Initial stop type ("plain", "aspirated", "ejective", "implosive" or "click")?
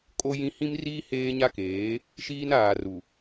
ejective